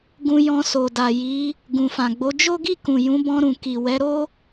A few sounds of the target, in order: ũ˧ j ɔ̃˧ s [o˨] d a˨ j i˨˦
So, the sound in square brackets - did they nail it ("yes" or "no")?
yes